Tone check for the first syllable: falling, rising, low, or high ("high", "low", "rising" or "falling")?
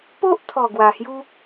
high